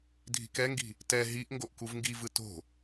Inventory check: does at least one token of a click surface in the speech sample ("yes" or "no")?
no